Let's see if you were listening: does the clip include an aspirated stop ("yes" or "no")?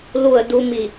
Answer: no